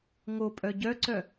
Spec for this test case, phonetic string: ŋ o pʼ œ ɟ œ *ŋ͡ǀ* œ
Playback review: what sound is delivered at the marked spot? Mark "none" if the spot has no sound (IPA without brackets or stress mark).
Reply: ǀ